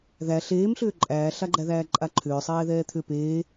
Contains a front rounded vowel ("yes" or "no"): yes